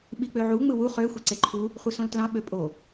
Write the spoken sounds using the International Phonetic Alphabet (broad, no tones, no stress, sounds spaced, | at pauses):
ɓ i k͡p ø ʕ u ŋ͡m ɯ w u χ ø xʷ i ǀ e ǃʰ u | χʷ ɯ s õ l t l ɑ̃ ɓ ø pʼ o